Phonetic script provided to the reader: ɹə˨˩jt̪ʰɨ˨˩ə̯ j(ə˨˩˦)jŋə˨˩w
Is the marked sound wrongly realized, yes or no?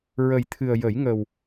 no